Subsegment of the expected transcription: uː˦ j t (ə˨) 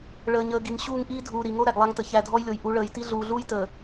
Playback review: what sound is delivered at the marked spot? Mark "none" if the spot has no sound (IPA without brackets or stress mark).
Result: əː˨